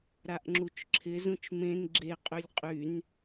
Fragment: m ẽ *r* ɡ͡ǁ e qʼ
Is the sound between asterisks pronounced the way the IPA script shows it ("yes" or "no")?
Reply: no